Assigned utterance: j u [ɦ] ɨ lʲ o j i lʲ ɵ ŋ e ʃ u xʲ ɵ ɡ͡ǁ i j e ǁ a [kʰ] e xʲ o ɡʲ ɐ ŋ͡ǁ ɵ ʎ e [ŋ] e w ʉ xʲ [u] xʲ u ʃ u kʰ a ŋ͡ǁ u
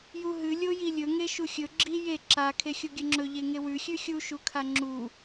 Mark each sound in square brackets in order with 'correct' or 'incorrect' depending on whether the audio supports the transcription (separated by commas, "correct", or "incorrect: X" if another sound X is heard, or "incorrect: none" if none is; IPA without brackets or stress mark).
correct, correct, correct, incorrect: ʉ